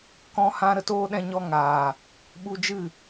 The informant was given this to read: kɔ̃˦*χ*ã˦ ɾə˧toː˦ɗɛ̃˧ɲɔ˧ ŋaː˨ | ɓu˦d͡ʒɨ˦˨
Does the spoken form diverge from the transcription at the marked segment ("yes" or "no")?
yes